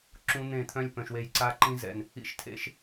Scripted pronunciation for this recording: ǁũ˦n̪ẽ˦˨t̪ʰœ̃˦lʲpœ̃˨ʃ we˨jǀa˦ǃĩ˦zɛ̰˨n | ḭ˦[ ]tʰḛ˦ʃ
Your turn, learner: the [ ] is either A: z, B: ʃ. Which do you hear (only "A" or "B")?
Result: B